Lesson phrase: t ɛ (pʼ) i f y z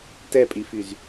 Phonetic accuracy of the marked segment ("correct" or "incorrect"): correct